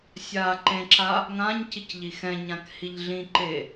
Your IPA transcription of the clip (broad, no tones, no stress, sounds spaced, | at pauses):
sʲ aː ǃ ẽ ǁ a | ŋ ã ɲ c i c ʎ i x ɛ̃ ɲ ã k h i ʎ ɮ ĩ ǃ e